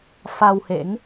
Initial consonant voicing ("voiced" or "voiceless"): voiceless